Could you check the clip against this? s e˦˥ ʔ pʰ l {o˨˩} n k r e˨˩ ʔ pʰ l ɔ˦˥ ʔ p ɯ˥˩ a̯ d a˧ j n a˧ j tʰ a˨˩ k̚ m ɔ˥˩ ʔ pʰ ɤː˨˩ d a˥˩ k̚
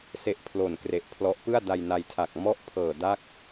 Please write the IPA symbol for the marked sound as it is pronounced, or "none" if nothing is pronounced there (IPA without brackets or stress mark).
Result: o˨˩